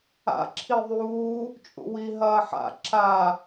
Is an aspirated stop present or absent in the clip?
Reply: present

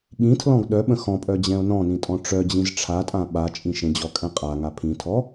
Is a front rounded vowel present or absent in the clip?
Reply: present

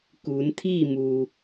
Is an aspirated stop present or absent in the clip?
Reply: present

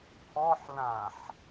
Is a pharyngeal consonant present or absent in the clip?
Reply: present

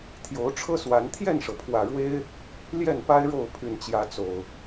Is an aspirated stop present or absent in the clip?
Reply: present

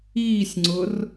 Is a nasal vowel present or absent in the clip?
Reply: absent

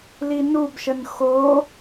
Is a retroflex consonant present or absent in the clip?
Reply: absent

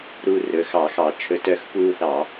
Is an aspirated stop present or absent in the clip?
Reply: present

